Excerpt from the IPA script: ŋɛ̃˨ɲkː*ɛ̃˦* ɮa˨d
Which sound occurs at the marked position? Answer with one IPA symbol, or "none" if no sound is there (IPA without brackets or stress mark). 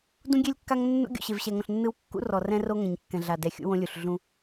ɛ̃˨